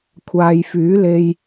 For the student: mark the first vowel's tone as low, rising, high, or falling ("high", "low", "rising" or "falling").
low